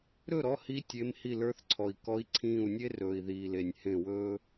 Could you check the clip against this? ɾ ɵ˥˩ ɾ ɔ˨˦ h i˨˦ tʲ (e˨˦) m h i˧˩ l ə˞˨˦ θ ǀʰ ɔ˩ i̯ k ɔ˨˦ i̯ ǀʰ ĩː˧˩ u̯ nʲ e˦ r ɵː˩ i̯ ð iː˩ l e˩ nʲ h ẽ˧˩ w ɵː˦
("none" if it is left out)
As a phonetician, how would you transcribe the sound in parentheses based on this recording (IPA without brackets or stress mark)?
e˨˦